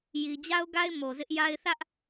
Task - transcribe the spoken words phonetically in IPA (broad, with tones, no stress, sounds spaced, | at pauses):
j i˨ d͡ʑ a˦ ʊ̯ ɡ a˦ ɪ̯ m o˨ z ɪ˦ ʔ j a˦ ɪ̯ θ ä˦ ʔ